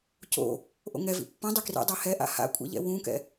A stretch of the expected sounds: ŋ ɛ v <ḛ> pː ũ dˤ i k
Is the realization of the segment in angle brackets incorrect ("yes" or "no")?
yes